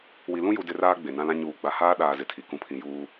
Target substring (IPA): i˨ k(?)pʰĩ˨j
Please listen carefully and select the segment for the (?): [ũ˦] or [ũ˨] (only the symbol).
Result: ũ˨